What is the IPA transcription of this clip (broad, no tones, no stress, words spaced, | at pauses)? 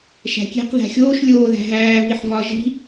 ʃæ̤kʲe̤q ðæ̤xʲoːʃ lʲoːðæ̤ ɦæː viħvɒ ʒi̤